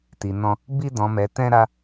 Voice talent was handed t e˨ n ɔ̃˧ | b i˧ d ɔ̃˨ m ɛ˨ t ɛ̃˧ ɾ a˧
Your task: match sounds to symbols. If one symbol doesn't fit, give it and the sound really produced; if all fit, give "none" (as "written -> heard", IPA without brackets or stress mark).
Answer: e˨ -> i˨